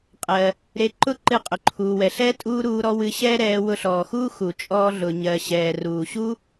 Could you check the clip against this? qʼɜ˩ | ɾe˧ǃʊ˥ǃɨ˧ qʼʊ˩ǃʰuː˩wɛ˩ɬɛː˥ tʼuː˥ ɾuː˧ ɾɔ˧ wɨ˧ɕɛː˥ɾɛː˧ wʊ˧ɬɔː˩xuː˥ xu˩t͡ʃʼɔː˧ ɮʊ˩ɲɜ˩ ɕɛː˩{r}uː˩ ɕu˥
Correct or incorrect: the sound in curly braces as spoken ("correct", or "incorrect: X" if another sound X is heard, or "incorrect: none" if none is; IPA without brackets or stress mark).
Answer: correct